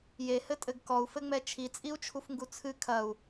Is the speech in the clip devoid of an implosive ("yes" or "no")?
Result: yes